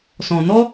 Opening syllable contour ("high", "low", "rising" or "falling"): low